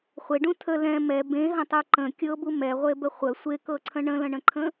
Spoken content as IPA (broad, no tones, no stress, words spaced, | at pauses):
χʷeɖũ tʰə lɛ̃ mɛ bẽɦə̃tˤu ǃə̃ kʲɤbu mɛʁʷebə χʷə sʷekɤǀʰə̃ ɳə̃lə̃ɳə̃ǃʰə̃